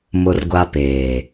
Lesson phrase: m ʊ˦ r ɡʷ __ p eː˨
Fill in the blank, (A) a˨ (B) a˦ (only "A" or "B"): B